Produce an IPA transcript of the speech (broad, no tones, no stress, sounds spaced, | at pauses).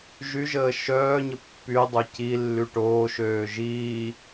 ʒ y ʒ əː ʃ œː ɲ ə pː y dˤ o c i lː y ʈ oː ʃ øː ʒ iː